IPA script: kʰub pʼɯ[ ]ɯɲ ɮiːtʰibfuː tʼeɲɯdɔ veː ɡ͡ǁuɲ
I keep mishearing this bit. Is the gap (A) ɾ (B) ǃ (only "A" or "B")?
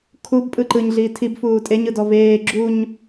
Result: B